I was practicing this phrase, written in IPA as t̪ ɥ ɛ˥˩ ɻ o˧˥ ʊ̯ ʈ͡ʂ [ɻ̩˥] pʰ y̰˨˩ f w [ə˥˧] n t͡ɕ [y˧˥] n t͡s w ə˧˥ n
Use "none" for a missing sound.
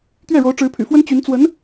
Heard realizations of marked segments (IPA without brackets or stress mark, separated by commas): ɻ̩˧˥, ə˥, y˧˥